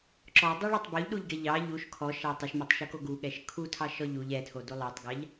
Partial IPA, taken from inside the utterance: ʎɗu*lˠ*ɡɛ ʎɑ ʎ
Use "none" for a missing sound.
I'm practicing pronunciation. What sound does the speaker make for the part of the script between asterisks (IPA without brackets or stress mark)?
ʎ